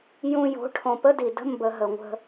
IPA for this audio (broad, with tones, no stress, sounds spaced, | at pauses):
j ũ˨ j o̤˨˦ ʈʰ õ˨ p ə˦ d i˨ d ə̤˦ m b ə˨ ɦ ə˨ ŋʷ ə̤˦